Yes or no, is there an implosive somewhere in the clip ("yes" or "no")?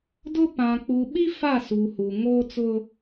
yes